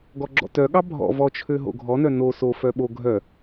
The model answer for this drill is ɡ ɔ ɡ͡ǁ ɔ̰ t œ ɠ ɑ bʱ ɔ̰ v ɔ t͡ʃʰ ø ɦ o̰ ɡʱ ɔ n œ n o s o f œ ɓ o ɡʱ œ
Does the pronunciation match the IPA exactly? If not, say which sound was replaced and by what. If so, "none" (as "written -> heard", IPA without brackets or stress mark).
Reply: none